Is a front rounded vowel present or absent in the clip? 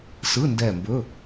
absent